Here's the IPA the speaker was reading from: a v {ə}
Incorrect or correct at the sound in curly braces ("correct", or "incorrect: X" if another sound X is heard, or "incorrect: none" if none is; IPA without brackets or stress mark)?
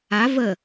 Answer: correct